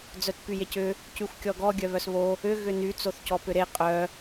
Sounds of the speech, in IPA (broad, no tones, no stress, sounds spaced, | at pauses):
d͡z œ t p y j e c ʏ | c y xʷ kʲ ɔ ɡ ɔ ɡʲ œ β œ s β o | ʏ ɣ ʏ n y t͡s o θ c ɔ p ʏ ɾ e qʼ œ